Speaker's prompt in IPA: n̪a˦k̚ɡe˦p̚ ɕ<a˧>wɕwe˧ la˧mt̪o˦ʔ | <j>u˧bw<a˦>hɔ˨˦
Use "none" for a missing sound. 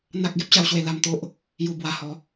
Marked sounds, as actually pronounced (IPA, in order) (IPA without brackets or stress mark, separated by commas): a˦, j, a˧